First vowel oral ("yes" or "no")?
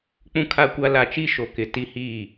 no